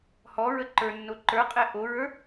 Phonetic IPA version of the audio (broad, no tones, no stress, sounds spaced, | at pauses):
h ɔ ɹ ə ǃ ə˞ nː o ǃ ə˞ qʼ ɛ ʔ o ɹ ə˞